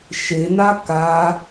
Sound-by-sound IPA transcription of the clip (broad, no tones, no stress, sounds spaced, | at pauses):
ʃ e n a k a